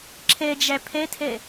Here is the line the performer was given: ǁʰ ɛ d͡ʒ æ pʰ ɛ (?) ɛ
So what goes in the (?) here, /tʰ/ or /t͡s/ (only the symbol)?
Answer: tʰ